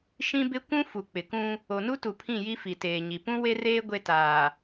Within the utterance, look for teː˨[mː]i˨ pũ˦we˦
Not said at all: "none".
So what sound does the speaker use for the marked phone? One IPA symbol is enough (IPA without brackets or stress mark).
ɲ